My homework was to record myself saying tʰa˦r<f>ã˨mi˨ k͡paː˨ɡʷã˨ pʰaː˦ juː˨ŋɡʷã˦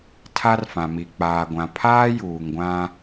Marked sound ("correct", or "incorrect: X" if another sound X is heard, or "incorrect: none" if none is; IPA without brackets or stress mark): correct